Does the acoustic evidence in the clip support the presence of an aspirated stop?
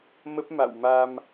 no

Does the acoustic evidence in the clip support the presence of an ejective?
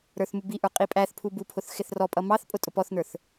yes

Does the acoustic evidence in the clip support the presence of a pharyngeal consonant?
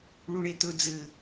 no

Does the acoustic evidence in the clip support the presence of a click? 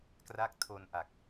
no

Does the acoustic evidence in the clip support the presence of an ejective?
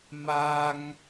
no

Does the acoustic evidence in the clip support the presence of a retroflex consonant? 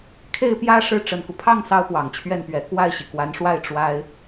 yes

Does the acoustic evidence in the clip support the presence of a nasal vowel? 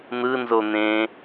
yes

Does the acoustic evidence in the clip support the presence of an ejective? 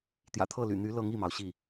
no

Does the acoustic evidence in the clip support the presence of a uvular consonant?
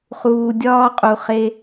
yes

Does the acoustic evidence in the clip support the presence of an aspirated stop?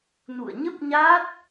no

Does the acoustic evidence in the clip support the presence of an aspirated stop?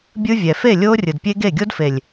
no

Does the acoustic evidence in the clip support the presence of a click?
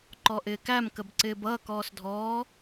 yes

